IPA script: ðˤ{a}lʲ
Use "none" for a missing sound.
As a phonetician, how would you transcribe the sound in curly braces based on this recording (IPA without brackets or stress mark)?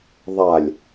a